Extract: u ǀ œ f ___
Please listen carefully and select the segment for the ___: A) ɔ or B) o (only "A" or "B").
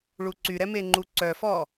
A